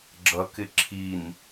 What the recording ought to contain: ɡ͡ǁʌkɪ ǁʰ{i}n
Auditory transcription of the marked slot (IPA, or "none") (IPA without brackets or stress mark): i